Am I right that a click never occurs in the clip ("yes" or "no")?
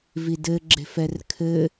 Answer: no